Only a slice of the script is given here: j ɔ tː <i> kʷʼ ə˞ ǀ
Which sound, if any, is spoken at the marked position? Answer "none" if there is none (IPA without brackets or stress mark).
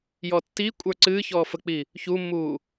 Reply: i